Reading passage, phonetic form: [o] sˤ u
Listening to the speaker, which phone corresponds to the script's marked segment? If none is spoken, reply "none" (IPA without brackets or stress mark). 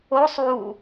o